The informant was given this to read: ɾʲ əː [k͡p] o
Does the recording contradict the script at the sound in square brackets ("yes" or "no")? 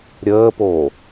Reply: yes